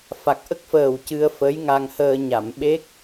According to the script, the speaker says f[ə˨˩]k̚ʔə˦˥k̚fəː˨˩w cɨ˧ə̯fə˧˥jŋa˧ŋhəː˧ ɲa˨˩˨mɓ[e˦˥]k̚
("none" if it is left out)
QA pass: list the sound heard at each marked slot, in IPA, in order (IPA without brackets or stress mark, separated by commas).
a˨˩, e˦˥